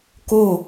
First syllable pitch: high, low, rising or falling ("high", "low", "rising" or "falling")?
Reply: falling